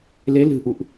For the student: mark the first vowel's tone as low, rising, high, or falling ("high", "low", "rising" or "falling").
rising